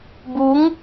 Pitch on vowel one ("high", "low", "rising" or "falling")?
rising